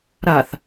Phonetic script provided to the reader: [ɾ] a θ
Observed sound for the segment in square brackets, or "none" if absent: ɾ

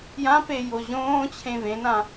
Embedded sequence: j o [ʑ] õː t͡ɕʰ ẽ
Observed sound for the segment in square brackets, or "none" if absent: ʑ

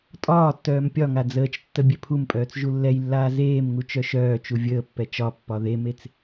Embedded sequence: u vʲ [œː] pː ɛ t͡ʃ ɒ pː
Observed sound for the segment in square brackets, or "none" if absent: əː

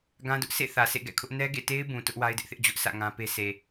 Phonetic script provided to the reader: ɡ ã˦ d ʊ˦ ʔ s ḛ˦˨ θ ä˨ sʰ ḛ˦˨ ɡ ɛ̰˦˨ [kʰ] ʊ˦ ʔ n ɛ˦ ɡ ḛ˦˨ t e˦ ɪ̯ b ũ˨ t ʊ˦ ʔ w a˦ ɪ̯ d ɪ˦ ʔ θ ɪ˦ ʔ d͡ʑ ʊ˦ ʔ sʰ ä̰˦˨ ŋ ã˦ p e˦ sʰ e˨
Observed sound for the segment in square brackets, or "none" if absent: kʰ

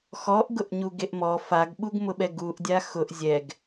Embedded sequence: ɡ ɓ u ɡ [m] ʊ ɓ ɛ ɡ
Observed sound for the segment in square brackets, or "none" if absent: m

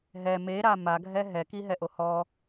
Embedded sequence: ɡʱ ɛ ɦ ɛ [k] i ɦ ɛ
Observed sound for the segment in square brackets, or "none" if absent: k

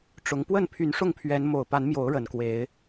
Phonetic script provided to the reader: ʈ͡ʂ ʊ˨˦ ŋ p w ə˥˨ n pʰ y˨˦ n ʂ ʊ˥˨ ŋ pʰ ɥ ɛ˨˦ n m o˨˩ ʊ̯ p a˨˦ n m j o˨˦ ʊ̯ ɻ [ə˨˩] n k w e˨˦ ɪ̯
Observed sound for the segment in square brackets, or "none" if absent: ə˨˩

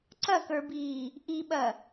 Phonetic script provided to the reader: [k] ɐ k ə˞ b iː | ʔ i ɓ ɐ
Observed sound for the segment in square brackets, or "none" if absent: ǀ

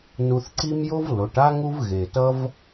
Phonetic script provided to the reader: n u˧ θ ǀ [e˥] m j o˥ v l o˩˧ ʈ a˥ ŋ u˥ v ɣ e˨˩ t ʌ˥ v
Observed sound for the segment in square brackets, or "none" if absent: i˥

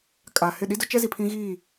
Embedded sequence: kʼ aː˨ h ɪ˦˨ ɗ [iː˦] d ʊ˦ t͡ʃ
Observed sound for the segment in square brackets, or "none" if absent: i˦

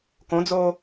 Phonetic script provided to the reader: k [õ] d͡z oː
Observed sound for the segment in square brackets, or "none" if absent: õ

